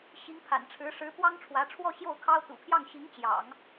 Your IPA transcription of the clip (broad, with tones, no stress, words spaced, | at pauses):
ɕi˧˥ŋpʰa̰˨˩nʈ͡ʂʰɻ̩˧˥ ʂɻ̩˧˥pwɑ˥ŋʈ͡ʂʰwä˧˥ ʈ͡ʂʰwɔ˥˧ɕjo˥˩ʊ̯kʰɑ˥ʊ̯ t̪ṵ˨˩pʰjɑ˥˩ŋɕi˧˥ŋ t͡ɕjɑ̰˨˩˦ŋ